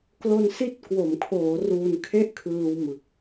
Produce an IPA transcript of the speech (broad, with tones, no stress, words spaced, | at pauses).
klo˧nsi˦˥t̚ kwo˩˦mkʰoː˩˦ ruː˧nkʰe˥˩ʔkʰɯː˧w mɯ˨˩k̚